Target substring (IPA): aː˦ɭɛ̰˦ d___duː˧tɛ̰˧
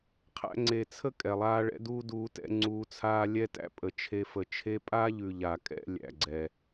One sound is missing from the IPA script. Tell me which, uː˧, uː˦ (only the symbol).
uː˦